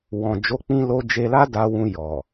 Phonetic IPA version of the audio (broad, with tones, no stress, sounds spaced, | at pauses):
w ɔ̃˨ d͡ʒ o˨˦ k͡p ĩ˧ l o˧ d͡ʒ e˧ l a˦ d a˧ w ũ˧ j ɔ˨